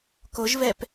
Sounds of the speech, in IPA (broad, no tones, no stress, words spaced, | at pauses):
koʒvɛp